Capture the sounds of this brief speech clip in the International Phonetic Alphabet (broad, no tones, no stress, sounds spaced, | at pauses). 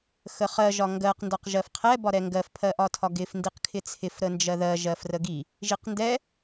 x ə χ ɜ ʒ ɒ ŋ ɡ ɜ q n d ɒ q ʒ ɜ f qʰ ɛ b ɒ ɾ ɛ ŋ ɡ ɜ f pʰ ɜ ʔ ɒ tʰ ɒ ɡ ɪ f n d i q kʰ ɪ t͡sʰ ɪ f ɾ ə n d͡ʒ ɜ ð ɜ ʒ ɜ f r ə ɡ i | ʒ i q n d ɛ